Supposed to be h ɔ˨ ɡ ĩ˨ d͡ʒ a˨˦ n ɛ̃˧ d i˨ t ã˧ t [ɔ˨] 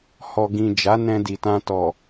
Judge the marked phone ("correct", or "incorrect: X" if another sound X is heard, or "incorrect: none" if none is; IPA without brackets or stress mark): correct